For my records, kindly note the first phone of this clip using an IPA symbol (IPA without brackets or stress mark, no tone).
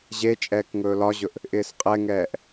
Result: ʑ